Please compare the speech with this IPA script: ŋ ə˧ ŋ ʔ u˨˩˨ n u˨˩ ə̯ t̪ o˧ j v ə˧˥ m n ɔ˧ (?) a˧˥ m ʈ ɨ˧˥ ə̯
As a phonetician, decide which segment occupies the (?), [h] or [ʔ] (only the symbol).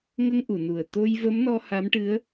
h